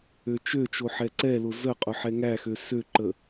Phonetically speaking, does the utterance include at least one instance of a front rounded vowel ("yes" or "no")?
yes